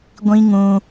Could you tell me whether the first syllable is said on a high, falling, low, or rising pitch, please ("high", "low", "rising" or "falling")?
high